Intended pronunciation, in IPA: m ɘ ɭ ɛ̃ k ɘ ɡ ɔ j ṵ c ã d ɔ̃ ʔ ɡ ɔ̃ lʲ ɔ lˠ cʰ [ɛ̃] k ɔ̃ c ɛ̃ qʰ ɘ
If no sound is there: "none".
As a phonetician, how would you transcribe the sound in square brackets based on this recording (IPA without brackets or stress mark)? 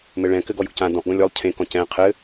ẽ